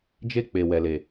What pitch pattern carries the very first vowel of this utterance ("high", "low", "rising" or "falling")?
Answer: high